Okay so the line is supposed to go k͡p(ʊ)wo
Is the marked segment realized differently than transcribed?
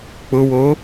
no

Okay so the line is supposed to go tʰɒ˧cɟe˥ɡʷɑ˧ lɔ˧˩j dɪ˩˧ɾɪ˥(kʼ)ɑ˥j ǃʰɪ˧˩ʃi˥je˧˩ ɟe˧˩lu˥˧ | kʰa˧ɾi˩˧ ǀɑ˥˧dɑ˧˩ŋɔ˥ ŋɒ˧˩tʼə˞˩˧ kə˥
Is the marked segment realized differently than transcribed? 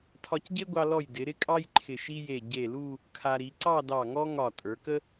no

